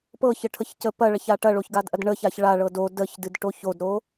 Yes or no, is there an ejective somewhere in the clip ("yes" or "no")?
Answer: no